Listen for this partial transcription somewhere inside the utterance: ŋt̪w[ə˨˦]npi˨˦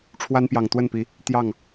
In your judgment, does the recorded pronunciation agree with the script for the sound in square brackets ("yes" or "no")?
no